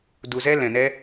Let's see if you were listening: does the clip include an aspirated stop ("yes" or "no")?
no